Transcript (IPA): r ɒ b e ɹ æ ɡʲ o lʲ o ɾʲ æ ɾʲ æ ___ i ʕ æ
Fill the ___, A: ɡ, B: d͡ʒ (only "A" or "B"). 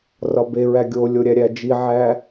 B